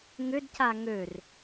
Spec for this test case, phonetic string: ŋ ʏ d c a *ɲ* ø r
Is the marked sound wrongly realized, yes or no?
yes